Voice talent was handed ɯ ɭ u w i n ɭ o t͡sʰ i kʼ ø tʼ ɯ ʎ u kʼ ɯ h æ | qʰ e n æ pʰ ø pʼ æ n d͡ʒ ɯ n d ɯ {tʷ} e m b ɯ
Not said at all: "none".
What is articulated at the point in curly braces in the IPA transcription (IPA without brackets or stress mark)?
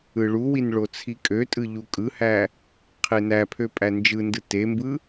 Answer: t